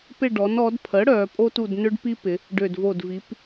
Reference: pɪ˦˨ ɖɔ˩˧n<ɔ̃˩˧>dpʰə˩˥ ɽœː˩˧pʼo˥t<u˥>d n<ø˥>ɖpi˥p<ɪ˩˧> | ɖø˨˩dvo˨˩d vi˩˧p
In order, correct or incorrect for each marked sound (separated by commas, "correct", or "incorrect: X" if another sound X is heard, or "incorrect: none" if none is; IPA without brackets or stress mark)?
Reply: incorrect: ɔ˩˧, incorrect: u˦˨, correct, correct